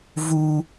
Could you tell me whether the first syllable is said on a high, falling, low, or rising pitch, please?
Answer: high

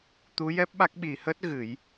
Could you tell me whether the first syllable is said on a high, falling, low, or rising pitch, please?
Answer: rising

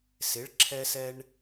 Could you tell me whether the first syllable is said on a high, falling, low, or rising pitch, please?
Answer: rising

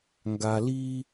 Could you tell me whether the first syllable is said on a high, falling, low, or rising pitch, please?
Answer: low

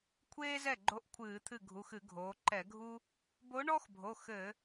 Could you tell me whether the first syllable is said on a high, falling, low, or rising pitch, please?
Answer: high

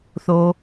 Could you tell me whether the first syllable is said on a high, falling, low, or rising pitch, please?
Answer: low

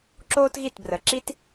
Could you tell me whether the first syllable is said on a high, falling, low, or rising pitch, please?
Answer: high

